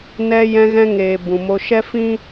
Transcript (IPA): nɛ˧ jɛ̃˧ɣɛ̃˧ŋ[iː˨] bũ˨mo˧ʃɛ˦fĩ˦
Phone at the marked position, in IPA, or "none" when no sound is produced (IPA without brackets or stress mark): eː˨